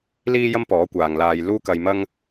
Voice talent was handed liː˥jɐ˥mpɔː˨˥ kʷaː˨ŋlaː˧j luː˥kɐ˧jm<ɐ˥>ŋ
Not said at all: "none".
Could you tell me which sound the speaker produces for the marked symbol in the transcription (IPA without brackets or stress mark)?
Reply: ɐ˥